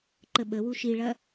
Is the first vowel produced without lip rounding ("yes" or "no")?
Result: yes